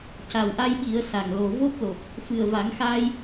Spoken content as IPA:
c a˨˩ w ʔ a˧ j ɓ i˨˩˦ ə̯ s a˨˩ ŋ l o˨˩ v o˦˥ p̚ l o˨˩ p̚ | f ɨ˨˩ ə̯ v a˨˩˦ ŋ x aː˧ j

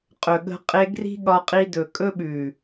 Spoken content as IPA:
qʼ ɵ˨ ɠ ə̤˧ qʼ e˧ ɡ r i̤˦ ɠ ɒ˧ qʼ i˧ d ɵ˨ kʼ ɵ˦ ɓ ʉ˨

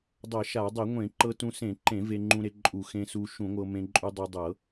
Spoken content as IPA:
dˤ ɤ˧˩˧ ʃ a˧˩˧ dˤ e˧˩˧ ŋʷ ẽ˧˩˧ ǃ ɤ˧ t ũ˧ s ẽ˧˩˧ ǃ ẽ˧˩˧ v e˧ ŋ͡ǃ ũ˧ ɾ e˧ ǃʼ u˧˩˧ x ẽ˧ s u˧ ʃ ũ˧˩˧ ŋʷ ɤ˧ m ẽ˧ ǃʼ u˧ dˤ ɤ˧ dˤ ɤ˧˩˧

